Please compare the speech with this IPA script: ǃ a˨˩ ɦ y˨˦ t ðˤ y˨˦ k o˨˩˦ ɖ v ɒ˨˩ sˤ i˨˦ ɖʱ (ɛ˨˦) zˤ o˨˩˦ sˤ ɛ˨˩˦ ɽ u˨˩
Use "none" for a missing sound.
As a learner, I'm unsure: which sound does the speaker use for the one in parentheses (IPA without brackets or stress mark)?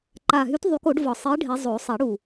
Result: ɛ˨˦